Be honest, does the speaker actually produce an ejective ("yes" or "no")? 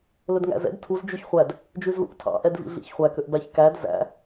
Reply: no